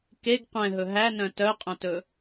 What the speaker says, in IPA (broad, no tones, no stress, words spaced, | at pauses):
keɡ qʷɛ̃ɦɵ ɦænœ̃ tœqʼœ̃tɵ